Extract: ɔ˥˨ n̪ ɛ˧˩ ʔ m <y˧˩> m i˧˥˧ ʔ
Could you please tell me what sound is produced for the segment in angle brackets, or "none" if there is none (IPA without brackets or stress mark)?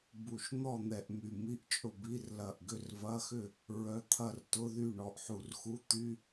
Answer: y˧˩